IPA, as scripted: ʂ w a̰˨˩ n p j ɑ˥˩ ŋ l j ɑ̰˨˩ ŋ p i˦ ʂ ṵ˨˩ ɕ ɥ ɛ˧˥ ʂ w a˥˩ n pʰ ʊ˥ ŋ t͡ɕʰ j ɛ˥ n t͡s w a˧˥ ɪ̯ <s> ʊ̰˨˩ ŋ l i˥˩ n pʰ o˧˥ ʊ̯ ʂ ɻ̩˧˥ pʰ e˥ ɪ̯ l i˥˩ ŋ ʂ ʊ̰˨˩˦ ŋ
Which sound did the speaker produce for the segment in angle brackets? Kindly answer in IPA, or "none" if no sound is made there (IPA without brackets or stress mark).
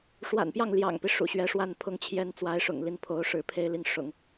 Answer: ʂ